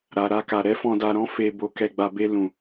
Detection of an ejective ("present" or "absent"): absent